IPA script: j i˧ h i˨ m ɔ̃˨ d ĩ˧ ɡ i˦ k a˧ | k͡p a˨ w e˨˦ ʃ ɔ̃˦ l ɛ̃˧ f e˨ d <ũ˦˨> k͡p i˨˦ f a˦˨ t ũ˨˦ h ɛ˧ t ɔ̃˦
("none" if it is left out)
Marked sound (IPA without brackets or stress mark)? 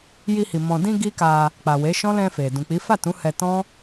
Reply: ũ˨